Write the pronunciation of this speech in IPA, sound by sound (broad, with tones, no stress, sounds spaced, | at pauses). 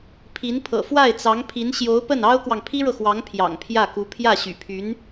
pʰ i˧˥ n pʰ ɤ̰˨˩ f w a˥˩ ɪ̯ t͡s ɑ˧˥ ŋ pʰ i˧˥ n ɕ j o˧˥ ʊ̯ p ə˥˩ n ɑ˥ ʊ̯ k w ɑ˨ ŋ pʰ i˥ ɻ ɤ˨ x w ɑ˧˥ ŋ pʰ j ɑ̰˨˩ ŋ pʰ j ä˥˩ k u˧˥ pʰ j ä˥˩ ɕ y̰˨˩ pʰ y˧˥ n